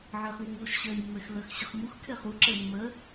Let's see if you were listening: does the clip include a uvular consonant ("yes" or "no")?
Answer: yes